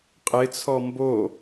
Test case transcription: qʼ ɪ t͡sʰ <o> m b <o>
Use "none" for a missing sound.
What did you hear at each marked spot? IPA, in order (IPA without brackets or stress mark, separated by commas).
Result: ɔ, o